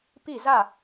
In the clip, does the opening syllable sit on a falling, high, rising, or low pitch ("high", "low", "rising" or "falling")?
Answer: falling